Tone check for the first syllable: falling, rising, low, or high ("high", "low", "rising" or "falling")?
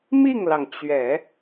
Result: falling